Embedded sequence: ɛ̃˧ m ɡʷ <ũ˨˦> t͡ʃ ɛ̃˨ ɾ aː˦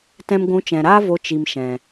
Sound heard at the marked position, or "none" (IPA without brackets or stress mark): ũ˨˦